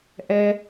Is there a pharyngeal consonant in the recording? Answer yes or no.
no